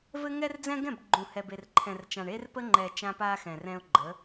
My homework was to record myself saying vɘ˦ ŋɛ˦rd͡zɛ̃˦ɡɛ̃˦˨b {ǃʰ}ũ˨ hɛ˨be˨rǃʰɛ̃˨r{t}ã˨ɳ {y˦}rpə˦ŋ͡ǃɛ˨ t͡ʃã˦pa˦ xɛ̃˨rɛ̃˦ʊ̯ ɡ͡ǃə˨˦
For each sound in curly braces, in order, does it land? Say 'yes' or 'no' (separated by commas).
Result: no, no, no